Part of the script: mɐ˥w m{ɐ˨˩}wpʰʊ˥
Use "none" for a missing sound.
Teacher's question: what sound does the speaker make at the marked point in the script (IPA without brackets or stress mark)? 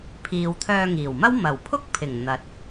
ɐ˨˩